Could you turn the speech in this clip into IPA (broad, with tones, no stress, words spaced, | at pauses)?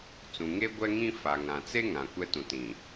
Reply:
t͡sũ˨ŋe˦ ɡʷɛ˦ŋĩ˦ fa˨ŋã˨t͡se˦ ŋã˨kʷɛ˦tũ˨ tĩ˨